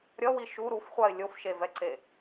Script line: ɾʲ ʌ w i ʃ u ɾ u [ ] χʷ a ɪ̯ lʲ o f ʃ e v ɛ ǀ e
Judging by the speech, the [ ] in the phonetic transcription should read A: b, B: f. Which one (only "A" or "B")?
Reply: B